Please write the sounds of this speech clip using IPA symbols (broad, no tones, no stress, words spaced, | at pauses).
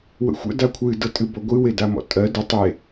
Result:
wə̰xʷə̰ dakʷʰɨ dɤtʼɨbɔɡʷɨ wedamɔ̰tʼɜ də tˤe